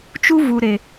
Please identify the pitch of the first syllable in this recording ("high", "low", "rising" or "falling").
high